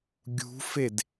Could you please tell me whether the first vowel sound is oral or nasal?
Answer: oral